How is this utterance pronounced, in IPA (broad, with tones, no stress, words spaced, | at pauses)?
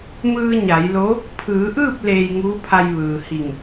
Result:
mɯː˧ ɲa˩˧jlo˧˥ | pʰɯː˩˧ʔɯː˥˨p̚ leː˧jŋuː˧˥pʰa˧j ʋɯː˩hi˧˩ŋ